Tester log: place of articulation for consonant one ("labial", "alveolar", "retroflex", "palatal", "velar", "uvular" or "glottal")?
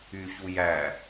palatal